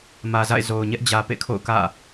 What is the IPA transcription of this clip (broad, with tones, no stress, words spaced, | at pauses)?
mä˨za̰˦˨ɪ̯zo˨ʊ̯ɲɛ˦ʔ d͡ʑä˨pḛ˦˨kʰo̰˦˨ʊ̯ kä̰˦˨